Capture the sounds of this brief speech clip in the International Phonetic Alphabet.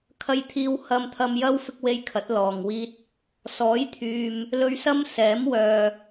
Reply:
kʰ ɐ˧ j t̪ʰ iː˧ w h ɐ˧ m t̪ʰ ɐ˧ m j ɐ˥ w f ɪ˥ k̚ w e˥ j kʰ ɐ˨˥ t̚ l ɔː˨ ŋ w iː˧ t̚ | s ɔː˨˥ j t̪ʰ yː˨ m | l ɵ˧ ɥ s ɐ˥ m s ɛː˨˥ m w œː˨

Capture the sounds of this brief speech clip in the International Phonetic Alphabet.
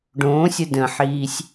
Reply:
ɖ õː sʲ ə d ə̃ ħ iː sʲ

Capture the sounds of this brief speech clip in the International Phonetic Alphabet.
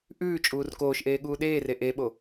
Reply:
ʔ ʉː t͡ʃʼ uː r k oː ʃ ʔ eː ɠ uː ɗ eː r e ʔ e ɓ o

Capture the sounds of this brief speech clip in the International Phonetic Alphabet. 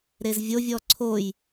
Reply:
ɾ e z vʲ o vʲ ɔ ǀʰ o j

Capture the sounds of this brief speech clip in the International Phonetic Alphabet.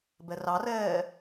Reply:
b ɛ r ɑ r ɛː

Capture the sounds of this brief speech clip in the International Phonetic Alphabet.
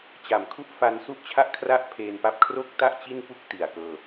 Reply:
t͡ɕ a˨˩ m kʰ u˥˩ ʔ f a˧ n s u˥˩ ʔ t͡ɕʰ a˥˩ ʔ kʰ r a˥˩ ʔ pʰ eː˧ n p a˥˩ p̚ kʰ r o˥˩ k̚ t a˥˩ ʔ t͡ɕ i˥˩ n p u˥˩ k̚ t i˨˩ a̯ k ɤː˧

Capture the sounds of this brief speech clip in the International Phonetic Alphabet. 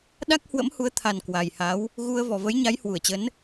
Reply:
ɗ a˦˥ k̚ h w ə̰˧˥ m h u˨˦ ə̯ t̪ʰ a˨˩ n k w a˨˩ j h a˨˦ w | ɣ u˧ ə̯ v ɔ˨˩ v ə˨˦ j ɲ a˨˦ j h w u˧˩ ə̯ t͡ɕ ə˨˦ n

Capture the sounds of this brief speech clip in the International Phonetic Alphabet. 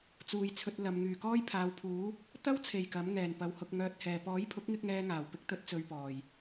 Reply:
t͡s uː˨ j t͡sʰ ɵ˧ t̚ l ɐ˨˧ m ŋ yː˨˩ k ɔː˥ j pʰ aː˨˧ w pʰ uː˨˥ | t̪ ɐ˥ w t͡sʰ e˨˩ j k ɐ˨˥ m ŋ ɛː˨ n p ɐ˨˧ w h ʊ˧ k̚ ŋ œː˧ t̚ h ɛː˨ p ɔː˨˥ j pʰ ʊ˨˥ k̚ ŋ ɪ˧ k̚ ŋ ɛː˥ ŋ aː˨˩ w p ɪ˥ k̚ t̪ ɵ˥ t̚ t͡s ɵ˧ ɥ p ɔː˨˩ j

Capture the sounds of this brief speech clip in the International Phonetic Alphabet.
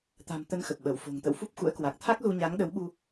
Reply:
t̪ a̤˨˩ m t̪ ə˧ n x ə˨˩ p̚ ɓ ə˧˩ w f o̤˨˩ ŋ t̪ ə̰˧˨ w f u˦˥ p̚ x ṵ˧˥ ə̯ k w a˨˩ k̚ t̪ʰ a˦˥ k̚ z u˧ ɲ a˨˦ ŋ ɗ ə˨˦ w ɓ u˧

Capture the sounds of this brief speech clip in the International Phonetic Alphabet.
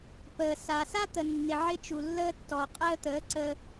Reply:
p əː˨ s a˨ s a˦ t̪ ə˨ nː ɪ˨ ʕ ɪ˦ t͡ʃ u˨ lː əː˦ tː ɔ˨ qʼ əː˦ t̪ əː˨˦ ǀ ə˦

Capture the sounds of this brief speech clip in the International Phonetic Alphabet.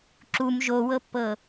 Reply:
ǁ u m ʒ o w ɤ pː ɤ

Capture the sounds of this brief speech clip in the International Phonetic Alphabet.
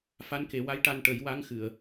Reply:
f a˧˥ n k e˨˩˦ w a˧˥ j ʈ a˧ n ʈ ə˨˩˦ j w a˧˥ ŋ x ɨ˨˩˨ ə̯

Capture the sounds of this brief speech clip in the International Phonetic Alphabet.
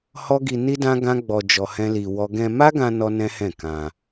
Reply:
h ɔ˦ ɡ i˧ n i˦ d ã˦ ɡ ã˦ ɡ͡b ɔ˧ d͡ʒ ɔ˧ h ɛ̃˦ l i˧ w ɔ˦ ɡ ɛ̃˧ m a˦ ɡ ã˧ n ɔ˦ n ɛ̃˦ h ɛ̃˦˨ k ã˧

